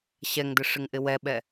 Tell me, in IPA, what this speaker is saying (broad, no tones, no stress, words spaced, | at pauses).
ɕɛŋdɪ ʂɪŋʔɪwɛɓɛ